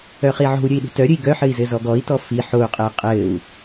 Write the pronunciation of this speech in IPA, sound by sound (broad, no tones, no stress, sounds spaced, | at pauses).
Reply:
œ χ i ʕ o̤ u̯ ɾʲ ɘ i̯ ɗ ṳ t œ ɾʲ ɘ i̯ ɡ œ ħ ɘ i̯ z ɘ z ɔ ɡ ɔ i̯ t ɔ f i ħ o u̯ qʼ ɘː qʼ ɘː u̯